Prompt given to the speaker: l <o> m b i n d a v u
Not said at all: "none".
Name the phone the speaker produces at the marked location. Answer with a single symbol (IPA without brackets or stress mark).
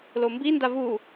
o